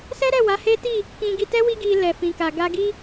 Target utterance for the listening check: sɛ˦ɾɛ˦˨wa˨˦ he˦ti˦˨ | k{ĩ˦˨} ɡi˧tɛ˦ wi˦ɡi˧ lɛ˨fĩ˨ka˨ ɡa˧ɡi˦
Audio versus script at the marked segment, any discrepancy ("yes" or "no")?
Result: yes